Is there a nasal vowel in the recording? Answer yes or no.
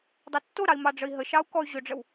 no